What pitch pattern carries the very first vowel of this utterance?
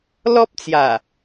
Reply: high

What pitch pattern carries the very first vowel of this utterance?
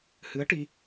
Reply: rising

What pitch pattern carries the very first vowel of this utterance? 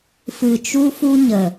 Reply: low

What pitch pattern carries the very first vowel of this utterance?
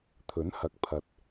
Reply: rising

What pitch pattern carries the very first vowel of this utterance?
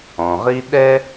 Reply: low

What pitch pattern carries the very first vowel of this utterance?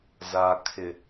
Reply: low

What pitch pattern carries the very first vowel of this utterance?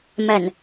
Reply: low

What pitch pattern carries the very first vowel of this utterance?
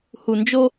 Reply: low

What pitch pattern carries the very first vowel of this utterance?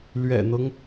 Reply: low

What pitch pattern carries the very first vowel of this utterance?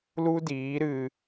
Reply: high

